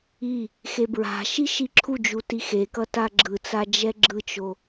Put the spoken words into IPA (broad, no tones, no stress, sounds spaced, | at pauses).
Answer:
i | x e b ɹ a̤ ʃ i ʃ i ǁʰ u d͡ʒ u t i x e k ʌ t a ɡ͡ǁ ɯ t͡s a d͡ʒ ɛ ɡ͡ǁ ɯ t͡ʃ o